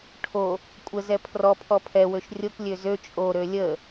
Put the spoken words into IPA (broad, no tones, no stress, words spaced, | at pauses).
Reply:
ʈʰo | kʷʼə zɛpʰrɔ pʰɔpʰɛ wøʃrʲok lʲøzø t͡ʃʼo ɾølʲə